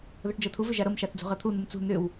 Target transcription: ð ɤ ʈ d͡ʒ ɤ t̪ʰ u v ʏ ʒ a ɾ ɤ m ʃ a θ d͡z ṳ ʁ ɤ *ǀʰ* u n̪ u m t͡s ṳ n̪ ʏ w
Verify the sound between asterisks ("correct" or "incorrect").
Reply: incorrect